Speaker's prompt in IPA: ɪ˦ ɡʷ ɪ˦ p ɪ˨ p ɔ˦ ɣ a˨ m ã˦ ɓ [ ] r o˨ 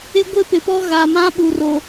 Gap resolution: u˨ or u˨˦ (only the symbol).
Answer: u˨